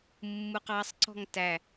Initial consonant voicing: voiced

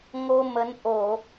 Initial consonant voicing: voiced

